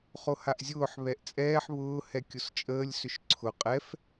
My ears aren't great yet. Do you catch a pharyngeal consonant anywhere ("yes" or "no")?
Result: yes